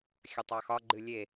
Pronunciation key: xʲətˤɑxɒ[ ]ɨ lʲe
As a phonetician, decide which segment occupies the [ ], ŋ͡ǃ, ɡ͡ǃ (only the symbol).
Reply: ɡ͡ǃ